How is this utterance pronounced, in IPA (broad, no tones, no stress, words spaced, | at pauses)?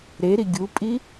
ɾeɾi ɡʲupʼi